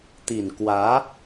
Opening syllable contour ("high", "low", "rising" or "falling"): low